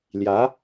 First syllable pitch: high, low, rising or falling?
rising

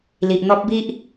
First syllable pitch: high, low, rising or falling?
low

